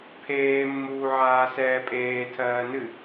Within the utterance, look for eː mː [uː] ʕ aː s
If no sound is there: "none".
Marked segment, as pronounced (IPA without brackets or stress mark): uː